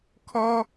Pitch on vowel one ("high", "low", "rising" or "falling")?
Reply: high